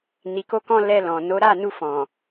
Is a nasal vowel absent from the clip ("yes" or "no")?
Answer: no